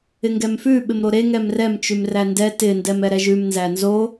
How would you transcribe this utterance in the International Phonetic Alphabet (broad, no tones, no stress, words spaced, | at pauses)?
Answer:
ɪŋɡɛmfʉ ɓɪmɾoɾe ŋɛmrɛm t͡ʃʉmrændɛ tɪ ndɛmɛɾɛʒʉm nzænzo